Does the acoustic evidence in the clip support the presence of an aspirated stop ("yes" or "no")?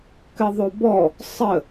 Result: no